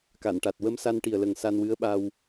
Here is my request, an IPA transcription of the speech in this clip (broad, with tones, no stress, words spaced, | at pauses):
ka˨˩˨nʈa˨˩t̚ wə˧msa˧nʈi˨˩ə̯lə˨˩ŋ sa˧nwɨ˧˥ə̯ɓa˧w